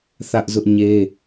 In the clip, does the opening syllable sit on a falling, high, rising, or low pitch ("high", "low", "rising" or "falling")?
high